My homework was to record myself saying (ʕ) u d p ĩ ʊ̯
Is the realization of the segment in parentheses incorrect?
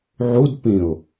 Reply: no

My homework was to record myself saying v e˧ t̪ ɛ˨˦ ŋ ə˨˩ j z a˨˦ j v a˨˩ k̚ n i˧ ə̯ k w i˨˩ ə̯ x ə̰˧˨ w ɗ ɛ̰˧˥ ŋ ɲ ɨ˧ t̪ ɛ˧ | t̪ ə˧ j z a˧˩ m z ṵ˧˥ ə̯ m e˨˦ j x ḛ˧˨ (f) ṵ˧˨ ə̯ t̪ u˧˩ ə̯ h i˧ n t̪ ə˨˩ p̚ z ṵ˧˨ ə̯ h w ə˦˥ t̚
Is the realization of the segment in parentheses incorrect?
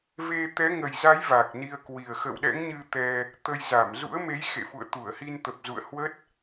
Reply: no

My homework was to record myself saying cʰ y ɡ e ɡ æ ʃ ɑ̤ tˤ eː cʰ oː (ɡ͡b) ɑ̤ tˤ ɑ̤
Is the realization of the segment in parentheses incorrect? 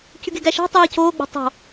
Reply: no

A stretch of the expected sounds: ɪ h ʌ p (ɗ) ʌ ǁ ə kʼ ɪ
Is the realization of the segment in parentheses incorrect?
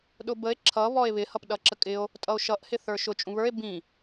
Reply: no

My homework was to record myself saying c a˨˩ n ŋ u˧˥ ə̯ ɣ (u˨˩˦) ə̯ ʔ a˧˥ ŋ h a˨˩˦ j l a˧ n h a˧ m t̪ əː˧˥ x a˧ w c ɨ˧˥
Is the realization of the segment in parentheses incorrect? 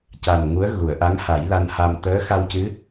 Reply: yes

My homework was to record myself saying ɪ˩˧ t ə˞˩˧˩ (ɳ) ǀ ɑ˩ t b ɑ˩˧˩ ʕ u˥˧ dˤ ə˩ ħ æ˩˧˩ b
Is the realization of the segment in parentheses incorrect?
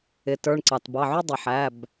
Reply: no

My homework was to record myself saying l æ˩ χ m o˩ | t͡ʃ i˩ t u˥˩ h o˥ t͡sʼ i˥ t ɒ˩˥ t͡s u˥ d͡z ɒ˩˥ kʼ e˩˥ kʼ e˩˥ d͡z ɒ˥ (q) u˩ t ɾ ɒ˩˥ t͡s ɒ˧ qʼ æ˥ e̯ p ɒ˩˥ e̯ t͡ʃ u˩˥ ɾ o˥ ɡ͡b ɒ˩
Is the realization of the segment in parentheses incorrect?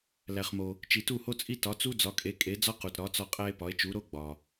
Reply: no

